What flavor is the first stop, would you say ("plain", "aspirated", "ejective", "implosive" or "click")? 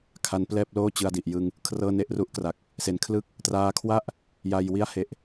aspirated